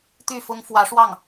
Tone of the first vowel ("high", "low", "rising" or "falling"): falling